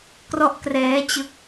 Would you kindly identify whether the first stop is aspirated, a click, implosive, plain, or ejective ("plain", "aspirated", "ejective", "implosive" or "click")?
plain